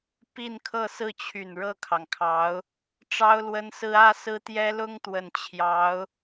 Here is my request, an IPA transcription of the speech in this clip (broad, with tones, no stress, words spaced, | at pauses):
pi˥˧nkʰɤ˥˧sɹ̩˥˩t͡ɕʰy˨˩n ɻɤ˥˩kʰɑ˩ŋkʰɑ˧˥ʊ̯ | ʈ͡ʂɑ˥ʊ̯lwə˥nsɹ̩˥ ä˥sɹ̩˥ t̪jɛ˥lʊ˥ŋ t̪wə˥˩nt͡ɕʰjɑ˧˥ʊ̯